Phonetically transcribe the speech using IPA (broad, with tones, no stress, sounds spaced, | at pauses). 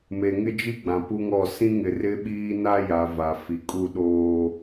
m e˨ ŋ ɪ˦ d͡ʒ i˦ ɡ͡b ã˨ p u˦ ŋ ɔ˦˨ s ĩ˦ ŋ ɪ˨ r ɪ˦ ɓ iː˦ n a˦ j a˨ v a˨ f i˨ kʼ u˦˨ ɗ oː˦